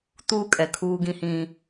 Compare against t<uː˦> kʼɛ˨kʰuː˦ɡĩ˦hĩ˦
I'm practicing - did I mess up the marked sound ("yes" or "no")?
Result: no